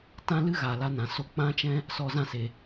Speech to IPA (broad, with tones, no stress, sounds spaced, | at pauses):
t ã˦ l ɨ˦ ɣ a˨ l a˧ n ã˨ s o˧ k͡p ã˦ t͡ʃ ɛ̃˦ | s ɔ˧ z ã˦˨ s e˨